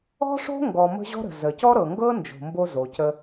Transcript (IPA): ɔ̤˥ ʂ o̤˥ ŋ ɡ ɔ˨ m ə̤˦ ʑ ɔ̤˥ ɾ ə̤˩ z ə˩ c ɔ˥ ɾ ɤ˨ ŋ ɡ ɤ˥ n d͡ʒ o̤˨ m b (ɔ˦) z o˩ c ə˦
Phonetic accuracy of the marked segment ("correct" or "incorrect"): incorrect